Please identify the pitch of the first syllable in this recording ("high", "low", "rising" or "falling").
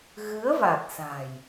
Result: rising